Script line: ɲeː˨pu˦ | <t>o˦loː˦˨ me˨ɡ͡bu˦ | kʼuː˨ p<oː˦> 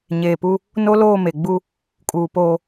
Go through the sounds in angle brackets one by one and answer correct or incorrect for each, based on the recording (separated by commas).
incorrect, correct